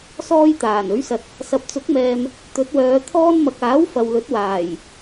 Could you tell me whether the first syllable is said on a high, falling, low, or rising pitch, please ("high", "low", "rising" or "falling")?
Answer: high